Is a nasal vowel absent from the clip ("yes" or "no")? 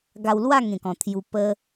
no